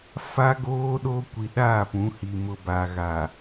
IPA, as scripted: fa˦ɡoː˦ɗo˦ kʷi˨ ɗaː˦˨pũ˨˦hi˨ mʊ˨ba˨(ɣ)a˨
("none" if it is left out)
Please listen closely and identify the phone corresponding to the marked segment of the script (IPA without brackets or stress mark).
ɣ